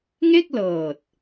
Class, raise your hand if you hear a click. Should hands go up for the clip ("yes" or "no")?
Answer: no